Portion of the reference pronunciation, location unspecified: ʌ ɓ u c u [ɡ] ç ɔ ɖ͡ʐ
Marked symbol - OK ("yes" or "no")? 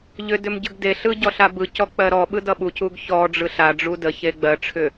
yes